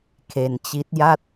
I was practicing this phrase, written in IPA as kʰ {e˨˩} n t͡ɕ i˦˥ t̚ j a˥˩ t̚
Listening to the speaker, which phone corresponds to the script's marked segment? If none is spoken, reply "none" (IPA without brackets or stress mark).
e˧